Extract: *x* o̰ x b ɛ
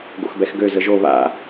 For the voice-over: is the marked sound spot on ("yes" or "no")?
no